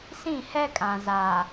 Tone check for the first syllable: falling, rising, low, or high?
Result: falling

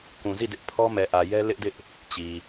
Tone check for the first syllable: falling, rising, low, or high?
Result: low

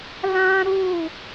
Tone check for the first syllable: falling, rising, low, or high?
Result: high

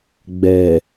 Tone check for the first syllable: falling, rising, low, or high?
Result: low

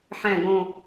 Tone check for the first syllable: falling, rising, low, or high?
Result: low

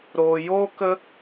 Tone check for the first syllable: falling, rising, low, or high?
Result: low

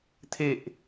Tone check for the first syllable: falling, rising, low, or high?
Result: low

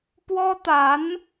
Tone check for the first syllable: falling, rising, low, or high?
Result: high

